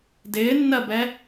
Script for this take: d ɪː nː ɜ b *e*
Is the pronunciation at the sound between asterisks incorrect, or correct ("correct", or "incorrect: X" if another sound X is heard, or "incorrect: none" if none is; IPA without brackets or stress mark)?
incorrect: ɛ